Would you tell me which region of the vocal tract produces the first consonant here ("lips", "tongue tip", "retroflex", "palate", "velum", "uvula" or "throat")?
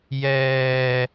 palate